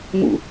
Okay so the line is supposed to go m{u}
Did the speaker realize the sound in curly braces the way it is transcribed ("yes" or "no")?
no